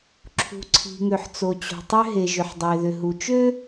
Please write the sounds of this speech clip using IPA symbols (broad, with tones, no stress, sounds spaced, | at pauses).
ǁʰ ṳ˩ ǀʰ i̤˩ ŋ ø˩ ħ t͡s o˩ t͡ɕ o̤˩ tˤ ø˥ ɦ e˩ ʒ ʏ˩ ħ dˤ e˩ ð ʏ˩ ɦ u˩ t͡ʃ ø˥